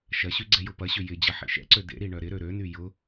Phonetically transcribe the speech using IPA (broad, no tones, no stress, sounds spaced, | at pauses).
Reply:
ʃ ɐ ɕ y ɡ͡ǀ ɛ j ʊ p ɐ ɕ ʏ j ɪ d͡ʑ ɐ ħ ḭ ʃ ɛ̰ ǀ ø d ḛ ɾ i ɳ œ ɾ ɪ ɾ ø ɾ ø n y j ʊ